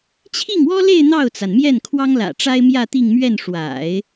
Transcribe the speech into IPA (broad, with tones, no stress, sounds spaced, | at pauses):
t͡ɕʰ i˥˩ ŋ w ɔ˥ l e˥˧ ɪ̯ n̪ ɑ˥˩ ʊ̯ t͡s a˩ n m j ɛ˥˩ n kʰ w ɑ˥ ŋ l ä̰˨˩ ʈ͡ʂ a˥ ɪ̯ m j ä˥˧ t̪ i˥˧ ŋ m ɥ ɛ˥˩ n ʂ w a̰˨˩˦ ɪ̯